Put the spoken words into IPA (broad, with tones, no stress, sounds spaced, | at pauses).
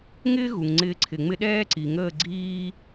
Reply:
ŋ ɪː˥ ɣ u˩ ŋ ŋ͡ǀ ɪː˧ ǀʰ ɪ˩ ŋ͡m ɪ˥ ɗ ɛː˥ ǀ i˩ ŋ əː˥˩ ɡ͡ǀ iː˥